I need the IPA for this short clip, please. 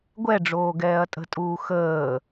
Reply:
ɡʷ ɛ ɖ͡ʐ oː ɡ ɛː ɐ̯ tʼ ə̤ tʼ uː x əː

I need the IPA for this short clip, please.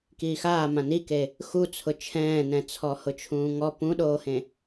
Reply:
k iː x aː m ã n i k e | x u t͡sʰ ʊ t͡ʃʰ ɛ̃ː n ɛ̃ t͡sʰ ɔ h ʊ t͡ʃʰ ũː ŋ ɔ p ũ ɗ oː h ẽ

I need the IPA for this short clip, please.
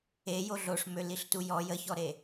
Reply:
e j o ɮ o ʂ m ø l i ɬ t u j ɔ j ə ç ɔ ɾ e

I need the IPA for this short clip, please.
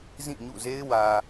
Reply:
z ĩ˦˨ ɲ ṵ˦˨ z e˦ ɪ̯ w ä˨

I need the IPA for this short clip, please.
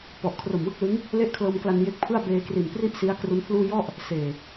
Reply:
p ɔ˨˩ ʔ kʰ r o˨˩ m w ɯ˦˥ k̚ l ɯ˦˥ ŋ | l e˥˩ ʔ kʰ l ɤː˧ m k l a˧ n j e˦˥ k̚ pʰ ɯ˥˩ a̯ b eː˧ k r i˨˩ n p r i˥˩ ʔ s i˦˥ a̯ k r u˦˥ n pʰ l uː˥˩ j ɔ˥˩ ʔ | s eː˨˩

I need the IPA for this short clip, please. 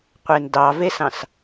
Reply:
qʷ e n d ɑ v e s ɑ̃ s

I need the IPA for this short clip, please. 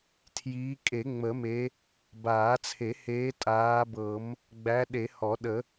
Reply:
tʰ j iː˨˦ kʼ e˨˩˦ ŋ͡m ə˨˩˦ m e˨˦ | b aː˨˩˦ t͡sʰ e˨˩˦ h eː˨˦ tʼ aː˨˦ b ɤ˨˩˦ m | ɡ͡b æ˨˦ ɗ e˨˩˦ h ɔ˨˩˦ ɗ ə˨˩˦

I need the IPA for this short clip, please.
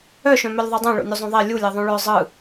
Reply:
œ ʃ œ̃ m œ lʲ ðˤ ʉ dˤ õ ɭ o̰ nʲ u zˤ õ ðˤ e lʲ u lʲ e ðˤ õ ɭ œ zˤ ɯ

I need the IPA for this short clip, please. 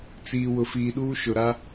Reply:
t͡s iː˨ w ʊ˨ f iː˨ ɗ uː˦ ʃ ʊ˨ ɾ a˦

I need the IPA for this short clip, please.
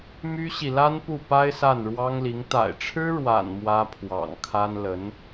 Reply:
m y˥ ɕ i˨ l a˥ n p u˥˩ p a˥ ɪ̯ s a˥˩ n ɻ w ɑ˥ ŋ l i˧˥ ŋ t̪ a̰˨˩ ɪ̯ ʈ͡ʂʰ ɻ̩˥ ɻ w a̰˨˩ n m w ä˥ pʰ w ɑ̰˨˩ ŋ kʰ a˥ n l ə˧˥ n

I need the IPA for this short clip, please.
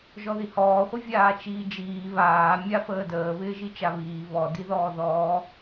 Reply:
ʒ ɔ ð i h ɔː χʷ ɪ vʲ aː t͡ʃ iː d͡ʒ iː β aː mʲ a f əː d əː β ɪː ʒ i t͡ʃ a β iː β ɔ d i ð ɔː ð ɔː

